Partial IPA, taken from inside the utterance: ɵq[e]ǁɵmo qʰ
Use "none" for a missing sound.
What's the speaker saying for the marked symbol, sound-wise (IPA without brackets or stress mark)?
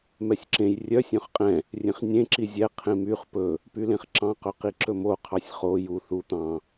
i